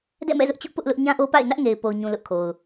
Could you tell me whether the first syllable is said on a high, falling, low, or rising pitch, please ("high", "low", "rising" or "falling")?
falling